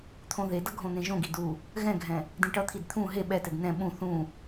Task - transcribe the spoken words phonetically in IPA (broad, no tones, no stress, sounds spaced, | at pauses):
t̪ʰ õ ð e d ʌ ɡʱ õ n̪ ẽ ʒ õ ɡ i d u | ɣ ɛ̃ ɡʱ ɛ̃ | d ĩ ʈ ʌ t̪ʰ i d t̪ʰ ũ ɦ e ɓ ɛ t ɛ d n̪ ɛ̃ ɓ ũ θ ũ